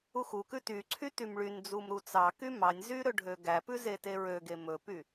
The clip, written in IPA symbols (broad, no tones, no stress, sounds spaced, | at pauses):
u x u k ʉ t y ǀʰ y t y m ɭ y n d͡z u m ɾ u t͡s ɑ k y m ɑ nʲ z y ɾ ɵ ɖʱ ø ɡ æ p ʉ z e t e ɹ ø ɡ e m ɵ p y